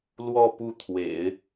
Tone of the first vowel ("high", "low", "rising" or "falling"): falling